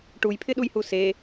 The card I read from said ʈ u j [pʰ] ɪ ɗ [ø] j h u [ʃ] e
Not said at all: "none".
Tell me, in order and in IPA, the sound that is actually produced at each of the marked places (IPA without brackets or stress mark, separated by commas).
pʰ, u, s